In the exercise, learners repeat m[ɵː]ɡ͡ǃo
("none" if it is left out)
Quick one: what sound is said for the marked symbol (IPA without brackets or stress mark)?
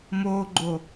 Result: oː